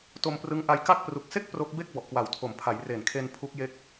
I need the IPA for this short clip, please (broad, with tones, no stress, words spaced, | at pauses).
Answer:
to˧mprɯ˦˥ŋ ʔa˧jka˥˩k̚ pru˨˩k̚se˥˩k̚ pro˦˥k̚ be˥˩k̚bɔ˨˩ʔkwa˨˩wtʰo˨˩m pʰa˩˦jre˨˩nkʰe˧n pʰu˦˥k̚je˦˥k̚